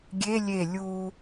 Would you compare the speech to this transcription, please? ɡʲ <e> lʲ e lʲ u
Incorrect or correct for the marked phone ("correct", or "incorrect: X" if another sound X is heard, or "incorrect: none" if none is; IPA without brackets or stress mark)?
correct